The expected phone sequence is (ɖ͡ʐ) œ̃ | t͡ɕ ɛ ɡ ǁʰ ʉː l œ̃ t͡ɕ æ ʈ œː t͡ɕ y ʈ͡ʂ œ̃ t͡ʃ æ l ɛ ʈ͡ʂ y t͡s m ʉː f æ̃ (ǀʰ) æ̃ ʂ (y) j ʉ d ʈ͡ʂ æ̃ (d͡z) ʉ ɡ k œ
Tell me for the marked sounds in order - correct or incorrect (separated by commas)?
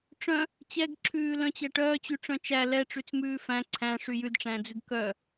incorrect, correct, correct, correct